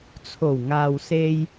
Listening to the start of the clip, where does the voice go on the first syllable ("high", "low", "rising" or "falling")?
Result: low